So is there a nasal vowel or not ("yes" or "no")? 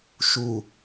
no